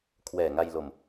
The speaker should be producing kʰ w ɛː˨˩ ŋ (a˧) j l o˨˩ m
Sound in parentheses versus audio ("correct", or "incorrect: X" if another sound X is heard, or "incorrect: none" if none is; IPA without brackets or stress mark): correct